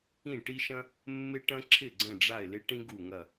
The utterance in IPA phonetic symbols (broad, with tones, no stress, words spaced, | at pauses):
ĩ˥˩ʈi˥ʃɐ̃˥ | mːɪ˥ʈɐ̃˥ǁʰɪ˥˩ ɡ͡ǀə̃˥˩ɖ͡ʐa˥˩ɪ̯ lɪ˥ʈĩ˥ ɡu˥˩ŋɐ˥˩